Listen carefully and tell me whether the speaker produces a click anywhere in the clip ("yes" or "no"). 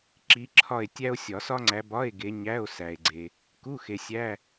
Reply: yes